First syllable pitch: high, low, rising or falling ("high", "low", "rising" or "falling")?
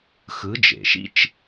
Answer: rising